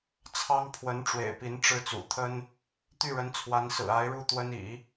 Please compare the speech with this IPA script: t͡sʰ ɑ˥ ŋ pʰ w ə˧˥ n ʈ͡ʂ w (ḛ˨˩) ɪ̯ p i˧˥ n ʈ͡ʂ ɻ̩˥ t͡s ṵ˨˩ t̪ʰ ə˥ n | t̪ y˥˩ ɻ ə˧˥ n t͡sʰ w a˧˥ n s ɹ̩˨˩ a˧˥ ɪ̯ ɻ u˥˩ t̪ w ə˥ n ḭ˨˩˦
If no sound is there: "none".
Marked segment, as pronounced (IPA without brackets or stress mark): ḛ˨˩